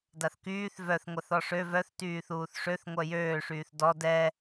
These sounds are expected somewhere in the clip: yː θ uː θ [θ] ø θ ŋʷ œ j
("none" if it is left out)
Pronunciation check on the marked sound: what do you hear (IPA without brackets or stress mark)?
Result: ʂ